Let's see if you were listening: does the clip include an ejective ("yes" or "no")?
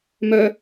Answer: no